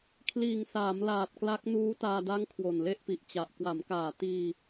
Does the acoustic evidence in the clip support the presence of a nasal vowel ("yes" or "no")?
no